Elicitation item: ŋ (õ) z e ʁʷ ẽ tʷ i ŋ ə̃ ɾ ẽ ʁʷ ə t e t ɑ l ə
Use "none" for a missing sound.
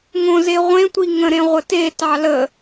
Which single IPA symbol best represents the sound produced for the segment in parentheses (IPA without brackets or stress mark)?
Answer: õ